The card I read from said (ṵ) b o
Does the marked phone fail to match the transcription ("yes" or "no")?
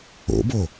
yes